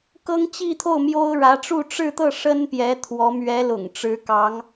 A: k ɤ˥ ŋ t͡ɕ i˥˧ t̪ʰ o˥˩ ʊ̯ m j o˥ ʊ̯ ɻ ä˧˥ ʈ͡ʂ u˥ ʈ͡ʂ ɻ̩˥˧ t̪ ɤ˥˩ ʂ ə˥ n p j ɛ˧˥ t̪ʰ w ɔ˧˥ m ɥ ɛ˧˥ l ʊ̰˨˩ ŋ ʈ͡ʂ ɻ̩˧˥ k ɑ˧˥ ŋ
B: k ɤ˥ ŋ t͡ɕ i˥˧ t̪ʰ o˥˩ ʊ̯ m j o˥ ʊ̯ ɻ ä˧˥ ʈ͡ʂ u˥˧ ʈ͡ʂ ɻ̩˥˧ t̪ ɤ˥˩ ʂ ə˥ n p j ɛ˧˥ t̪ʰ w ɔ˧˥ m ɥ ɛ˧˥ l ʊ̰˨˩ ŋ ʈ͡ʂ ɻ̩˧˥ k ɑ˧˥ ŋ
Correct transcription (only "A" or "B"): B